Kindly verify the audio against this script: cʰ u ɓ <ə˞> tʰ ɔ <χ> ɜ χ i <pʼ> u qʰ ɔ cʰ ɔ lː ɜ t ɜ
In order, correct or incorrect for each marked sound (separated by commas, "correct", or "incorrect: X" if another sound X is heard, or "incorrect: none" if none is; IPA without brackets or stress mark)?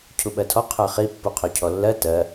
incorrect: ɜ, incorrect: qʰ, incorrect: pː